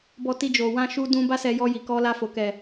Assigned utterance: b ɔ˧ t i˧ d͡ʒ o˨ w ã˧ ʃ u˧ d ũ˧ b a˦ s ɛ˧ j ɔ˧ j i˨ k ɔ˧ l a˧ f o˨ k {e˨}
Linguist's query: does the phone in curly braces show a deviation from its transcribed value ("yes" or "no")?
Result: yes